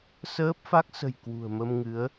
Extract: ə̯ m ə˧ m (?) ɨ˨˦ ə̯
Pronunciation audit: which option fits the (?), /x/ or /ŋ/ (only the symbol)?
ŋ